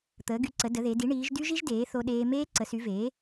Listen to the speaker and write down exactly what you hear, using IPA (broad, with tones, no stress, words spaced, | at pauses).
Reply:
t̪əː˩˥ɡy˩˥ǀə˩˥ də˩˥ðe˩˥ di˩˥ ɳiː˩˥ʒ dy˦˥ʒi˦˥ʒdeː˩˥ θo˦˥ɗeː˦˥ meː˦˥ǀə˩˥sy˩˥veː˩˥